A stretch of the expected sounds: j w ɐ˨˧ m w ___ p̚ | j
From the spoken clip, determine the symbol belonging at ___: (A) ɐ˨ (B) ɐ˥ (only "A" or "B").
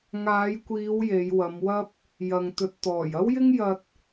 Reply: B